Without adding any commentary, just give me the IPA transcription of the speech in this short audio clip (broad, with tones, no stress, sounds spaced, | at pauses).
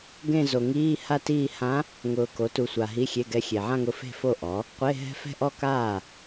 ɡ ẽ˥˧ z o˨ ŋ iː˧˥˧ h a˥˧ t iː˥˧ h ã˧˥ | ŋ ʊː˨ k o˩˥ t u˨ sʷ a˨ ɦ i˧˥˧ xʲ e˧˥˧ ɡ ɛ˧˥ xʲ e˨ ʕ ã˥˧ ŋ ʊ˧˥ f e̤˥˩ f o˥˩ ʔ ɔ˩˥ | qʷ e˧˥˧ ɦ ɛ̤˥˧ f ɛ̤˥˩ ʔ ɔ˥˩ k aː˥˩